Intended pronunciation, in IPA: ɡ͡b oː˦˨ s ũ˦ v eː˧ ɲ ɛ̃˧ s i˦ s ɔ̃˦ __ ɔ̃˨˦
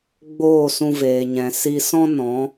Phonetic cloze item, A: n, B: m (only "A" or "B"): A